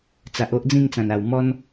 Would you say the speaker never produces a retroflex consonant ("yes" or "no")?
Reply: yes